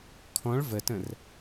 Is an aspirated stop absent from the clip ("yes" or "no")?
no